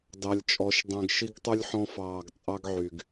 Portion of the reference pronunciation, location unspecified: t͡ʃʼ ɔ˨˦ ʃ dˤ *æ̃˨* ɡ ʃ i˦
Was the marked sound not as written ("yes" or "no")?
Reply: yes